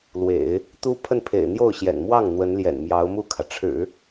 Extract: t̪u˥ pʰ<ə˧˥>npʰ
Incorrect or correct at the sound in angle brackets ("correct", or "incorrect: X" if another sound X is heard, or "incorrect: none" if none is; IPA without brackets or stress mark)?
incorrect: ə˥˩